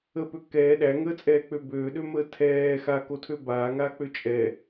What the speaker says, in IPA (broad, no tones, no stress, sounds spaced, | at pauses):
ə p ø k ɛː ɗ æ ŋ əː t͡sʼ ɛː k͡p ø b øː ɗ ø m əː tʰ ɛː x a k o tʰ ø b aː ŋ aː k͡p ø t͡ʃʼ ɛ